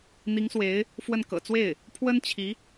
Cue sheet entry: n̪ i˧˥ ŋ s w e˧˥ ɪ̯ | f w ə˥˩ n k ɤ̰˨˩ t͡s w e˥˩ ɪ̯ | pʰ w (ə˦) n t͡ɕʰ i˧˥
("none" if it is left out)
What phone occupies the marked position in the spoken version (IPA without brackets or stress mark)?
ə˥